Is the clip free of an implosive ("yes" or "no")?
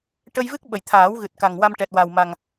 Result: no